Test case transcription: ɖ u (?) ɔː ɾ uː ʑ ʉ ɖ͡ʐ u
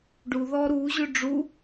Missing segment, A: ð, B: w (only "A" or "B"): A